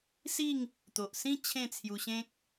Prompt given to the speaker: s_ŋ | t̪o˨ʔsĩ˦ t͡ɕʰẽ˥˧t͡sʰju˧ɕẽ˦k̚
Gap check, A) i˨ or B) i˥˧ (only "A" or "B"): B